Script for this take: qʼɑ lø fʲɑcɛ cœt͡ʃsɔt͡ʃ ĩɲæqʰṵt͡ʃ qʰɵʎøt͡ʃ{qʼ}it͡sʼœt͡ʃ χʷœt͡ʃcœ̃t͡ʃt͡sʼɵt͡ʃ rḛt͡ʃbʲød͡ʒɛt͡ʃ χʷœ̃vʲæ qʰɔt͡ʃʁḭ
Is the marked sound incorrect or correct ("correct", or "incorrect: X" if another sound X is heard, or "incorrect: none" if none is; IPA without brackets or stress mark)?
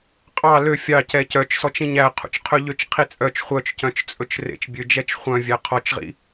incorrect: qʰ